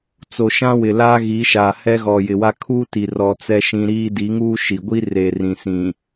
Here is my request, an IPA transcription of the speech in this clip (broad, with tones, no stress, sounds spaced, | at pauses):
t͡s o˨ ʃ ã˦ w ɪ˨ l aː˦ ɣ i˨˦ ʃ aː˨ h ɛ˦ ɣ ɔ˨ j ɪ˨ w a˦ kʰ uː˦ t i˨ r ɔ˨ t͡s ɛ˦ ʃ ĩ˦ ɾ iː˦ d i˨˦ ŋ uː˦ ʃ i˨ ɡʷ i˦ r e˨ r ĩ˨ s ĩ˨